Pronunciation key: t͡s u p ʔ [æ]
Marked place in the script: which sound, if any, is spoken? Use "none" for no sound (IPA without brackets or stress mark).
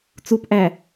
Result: æ